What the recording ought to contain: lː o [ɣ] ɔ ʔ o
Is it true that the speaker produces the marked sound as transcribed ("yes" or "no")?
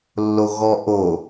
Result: yes